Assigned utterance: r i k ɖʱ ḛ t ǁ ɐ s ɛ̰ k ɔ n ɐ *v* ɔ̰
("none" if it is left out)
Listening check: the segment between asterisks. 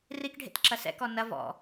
v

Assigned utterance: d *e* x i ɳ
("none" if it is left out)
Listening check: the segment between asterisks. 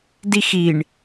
i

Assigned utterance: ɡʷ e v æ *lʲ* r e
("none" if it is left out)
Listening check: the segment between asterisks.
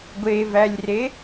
lʲ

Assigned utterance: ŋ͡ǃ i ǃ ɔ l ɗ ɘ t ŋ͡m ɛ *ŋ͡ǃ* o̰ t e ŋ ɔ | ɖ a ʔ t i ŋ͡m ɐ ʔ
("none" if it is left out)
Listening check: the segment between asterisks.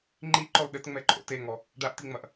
ǃʼ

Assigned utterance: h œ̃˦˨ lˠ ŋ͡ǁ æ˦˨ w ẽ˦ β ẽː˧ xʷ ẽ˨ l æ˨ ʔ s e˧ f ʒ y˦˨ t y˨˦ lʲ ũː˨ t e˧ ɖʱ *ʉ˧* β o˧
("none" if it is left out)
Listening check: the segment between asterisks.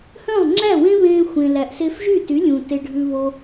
ʉ˧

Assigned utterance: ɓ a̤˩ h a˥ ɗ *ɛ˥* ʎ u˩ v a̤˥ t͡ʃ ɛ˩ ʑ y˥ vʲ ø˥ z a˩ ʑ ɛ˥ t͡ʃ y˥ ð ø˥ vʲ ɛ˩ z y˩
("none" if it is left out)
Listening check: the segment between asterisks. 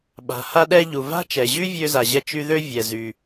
ɛ˥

